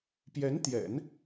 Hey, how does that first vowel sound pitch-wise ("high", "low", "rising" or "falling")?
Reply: rising